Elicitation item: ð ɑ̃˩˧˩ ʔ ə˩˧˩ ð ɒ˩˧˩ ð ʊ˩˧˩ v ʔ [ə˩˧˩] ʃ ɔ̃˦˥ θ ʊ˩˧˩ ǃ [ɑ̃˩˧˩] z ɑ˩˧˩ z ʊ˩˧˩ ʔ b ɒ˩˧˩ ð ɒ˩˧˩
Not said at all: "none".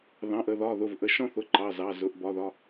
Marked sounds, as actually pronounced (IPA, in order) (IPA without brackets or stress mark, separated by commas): ə˩˧˩, ɑ˩˧˩